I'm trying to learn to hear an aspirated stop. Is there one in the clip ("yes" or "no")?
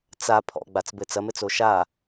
yes